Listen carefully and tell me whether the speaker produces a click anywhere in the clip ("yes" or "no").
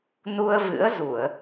no